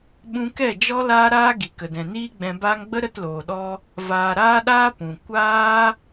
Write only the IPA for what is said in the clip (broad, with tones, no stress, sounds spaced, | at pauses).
ɓ ũ˧ k ɛ˦˨ d͡ʒ ɔ˦ l aː˧ ɾ aː˧ ɡ i˨ k ə˨ d ɛ̃˨ n iː˦ ɡ͡b ɛ̃˧ b aː˦ ŋ ɡ͡b ə˦ ɾ ə˧ t l oː˨ ɗ ɔ˧ | v aː˨ ɾ aː˧ ɗ aː˧ p ũ˨ kʷ aː˦